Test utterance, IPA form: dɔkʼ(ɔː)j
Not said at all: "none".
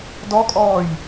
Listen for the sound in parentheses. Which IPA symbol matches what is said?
ɔː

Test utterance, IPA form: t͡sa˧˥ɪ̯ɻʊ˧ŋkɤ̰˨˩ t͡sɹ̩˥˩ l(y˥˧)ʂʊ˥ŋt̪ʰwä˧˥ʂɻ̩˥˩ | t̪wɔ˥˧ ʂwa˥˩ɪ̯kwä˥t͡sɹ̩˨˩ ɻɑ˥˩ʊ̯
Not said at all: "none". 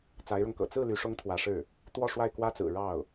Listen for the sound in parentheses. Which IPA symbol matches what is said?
y˧˥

